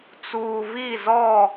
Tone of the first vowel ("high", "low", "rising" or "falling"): low